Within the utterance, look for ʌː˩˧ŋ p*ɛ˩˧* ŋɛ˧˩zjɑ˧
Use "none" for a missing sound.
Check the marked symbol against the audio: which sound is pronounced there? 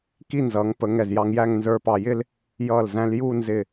ə˩˧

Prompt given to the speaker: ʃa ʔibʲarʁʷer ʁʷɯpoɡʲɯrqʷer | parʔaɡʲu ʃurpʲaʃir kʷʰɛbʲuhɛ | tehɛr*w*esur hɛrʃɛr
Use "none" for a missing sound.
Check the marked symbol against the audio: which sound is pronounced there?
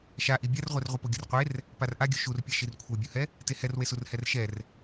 w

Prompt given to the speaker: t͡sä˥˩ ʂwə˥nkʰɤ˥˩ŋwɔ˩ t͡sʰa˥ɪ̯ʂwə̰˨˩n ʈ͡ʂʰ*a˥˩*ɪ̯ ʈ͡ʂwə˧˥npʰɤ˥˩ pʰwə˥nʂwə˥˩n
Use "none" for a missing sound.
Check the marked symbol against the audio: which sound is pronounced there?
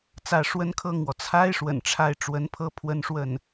a˥˩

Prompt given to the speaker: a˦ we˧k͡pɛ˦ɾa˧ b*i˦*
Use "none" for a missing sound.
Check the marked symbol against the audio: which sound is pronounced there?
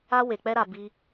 i˦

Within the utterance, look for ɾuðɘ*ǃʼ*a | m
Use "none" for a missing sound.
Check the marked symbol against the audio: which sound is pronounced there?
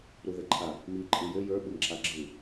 ǃʰ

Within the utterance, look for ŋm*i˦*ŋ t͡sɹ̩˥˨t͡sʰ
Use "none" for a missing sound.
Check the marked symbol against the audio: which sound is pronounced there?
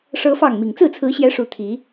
i˨˩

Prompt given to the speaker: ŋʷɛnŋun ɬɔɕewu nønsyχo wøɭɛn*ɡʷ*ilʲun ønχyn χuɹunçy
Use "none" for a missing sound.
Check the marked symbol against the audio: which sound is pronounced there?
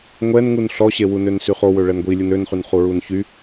ɡʷ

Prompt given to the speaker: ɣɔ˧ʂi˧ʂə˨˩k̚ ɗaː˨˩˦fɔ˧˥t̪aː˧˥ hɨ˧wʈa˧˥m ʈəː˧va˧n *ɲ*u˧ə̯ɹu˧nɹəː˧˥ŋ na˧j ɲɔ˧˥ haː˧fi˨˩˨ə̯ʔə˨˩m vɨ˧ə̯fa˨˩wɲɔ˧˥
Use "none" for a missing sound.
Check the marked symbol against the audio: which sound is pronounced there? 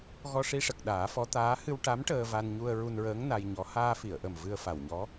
ɲ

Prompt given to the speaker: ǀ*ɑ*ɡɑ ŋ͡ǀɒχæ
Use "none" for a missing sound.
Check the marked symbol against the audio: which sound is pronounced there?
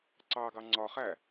ɑ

